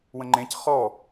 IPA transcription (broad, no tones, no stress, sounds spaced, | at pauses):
w ə̃ ŋ͡ǃ ẽ c χ ɔ